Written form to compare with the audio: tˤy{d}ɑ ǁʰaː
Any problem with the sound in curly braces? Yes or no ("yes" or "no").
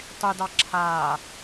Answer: no